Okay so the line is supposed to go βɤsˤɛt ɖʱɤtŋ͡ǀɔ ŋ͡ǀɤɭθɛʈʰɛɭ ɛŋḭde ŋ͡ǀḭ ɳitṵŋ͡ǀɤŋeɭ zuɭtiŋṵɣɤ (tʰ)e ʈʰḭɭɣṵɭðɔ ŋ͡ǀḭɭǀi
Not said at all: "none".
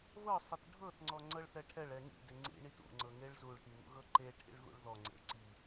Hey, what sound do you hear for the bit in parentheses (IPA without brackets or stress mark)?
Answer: ǃ